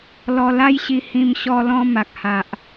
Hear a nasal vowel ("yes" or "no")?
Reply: yes